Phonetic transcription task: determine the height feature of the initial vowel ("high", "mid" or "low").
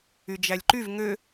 high